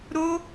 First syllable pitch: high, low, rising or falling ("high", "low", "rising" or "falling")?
high